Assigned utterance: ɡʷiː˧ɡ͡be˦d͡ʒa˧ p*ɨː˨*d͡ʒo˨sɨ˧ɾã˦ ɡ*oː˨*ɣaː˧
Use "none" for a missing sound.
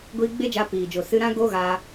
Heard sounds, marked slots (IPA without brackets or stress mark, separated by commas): iː˨, oː˦